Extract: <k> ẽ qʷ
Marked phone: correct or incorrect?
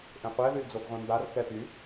incorrect: ʔ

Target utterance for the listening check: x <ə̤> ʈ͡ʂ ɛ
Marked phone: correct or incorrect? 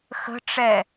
correct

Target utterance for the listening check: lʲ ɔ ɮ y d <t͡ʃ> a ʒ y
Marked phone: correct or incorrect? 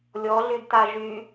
incorrect: t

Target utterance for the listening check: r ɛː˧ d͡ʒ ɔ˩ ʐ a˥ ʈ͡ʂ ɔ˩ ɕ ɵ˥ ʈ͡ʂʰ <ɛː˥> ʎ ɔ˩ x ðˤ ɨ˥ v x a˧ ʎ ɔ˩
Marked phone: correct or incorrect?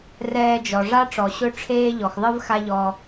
incorrect: eː˥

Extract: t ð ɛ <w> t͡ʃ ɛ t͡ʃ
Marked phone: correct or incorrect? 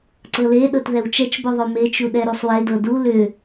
correct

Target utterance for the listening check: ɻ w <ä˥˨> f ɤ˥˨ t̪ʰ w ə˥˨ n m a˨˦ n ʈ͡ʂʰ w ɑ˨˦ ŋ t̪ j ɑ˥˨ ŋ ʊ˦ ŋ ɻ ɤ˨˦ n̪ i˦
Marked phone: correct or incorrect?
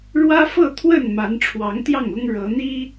incorrect: ä˦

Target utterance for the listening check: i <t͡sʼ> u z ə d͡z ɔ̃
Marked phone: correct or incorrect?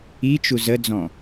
incorrect: t͡ʃ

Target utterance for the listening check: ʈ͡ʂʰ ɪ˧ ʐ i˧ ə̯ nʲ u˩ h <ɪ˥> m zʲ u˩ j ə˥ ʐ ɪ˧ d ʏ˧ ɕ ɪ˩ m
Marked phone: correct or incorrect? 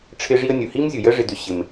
incorrect: i˥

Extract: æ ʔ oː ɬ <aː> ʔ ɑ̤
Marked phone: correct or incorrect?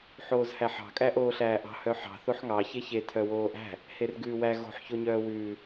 incorrect: æː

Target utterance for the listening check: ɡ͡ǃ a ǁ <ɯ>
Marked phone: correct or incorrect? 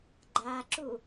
incorrect: u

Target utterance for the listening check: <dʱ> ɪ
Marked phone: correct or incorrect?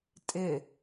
incorrect: tʼ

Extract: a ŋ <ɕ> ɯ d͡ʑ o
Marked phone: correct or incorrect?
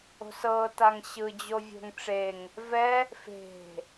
correct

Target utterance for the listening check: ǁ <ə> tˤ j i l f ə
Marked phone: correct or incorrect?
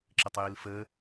correct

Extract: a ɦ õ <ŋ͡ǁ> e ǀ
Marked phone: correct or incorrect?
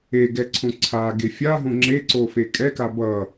correct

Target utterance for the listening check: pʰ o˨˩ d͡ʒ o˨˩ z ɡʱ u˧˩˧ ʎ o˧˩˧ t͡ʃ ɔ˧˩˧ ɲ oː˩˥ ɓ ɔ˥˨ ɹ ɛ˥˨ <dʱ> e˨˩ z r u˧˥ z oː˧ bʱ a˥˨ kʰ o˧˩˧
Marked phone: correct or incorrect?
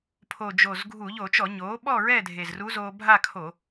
correct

